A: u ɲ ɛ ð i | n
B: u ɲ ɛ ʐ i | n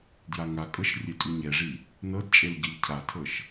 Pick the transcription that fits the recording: B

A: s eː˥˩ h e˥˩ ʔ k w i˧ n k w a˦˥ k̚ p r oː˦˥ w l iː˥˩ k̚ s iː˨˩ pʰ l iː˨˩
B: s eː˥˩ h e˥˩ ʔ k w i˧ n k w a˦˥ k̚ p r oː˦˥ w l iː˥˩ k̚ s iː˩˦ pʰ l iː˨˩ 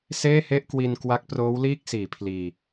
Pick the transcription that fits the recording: B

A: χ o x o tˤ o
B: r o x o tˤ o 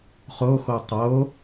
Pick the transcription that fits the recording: A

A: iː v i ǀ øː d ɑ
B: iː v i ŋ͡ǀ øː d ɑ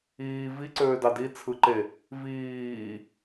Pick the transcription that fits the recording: A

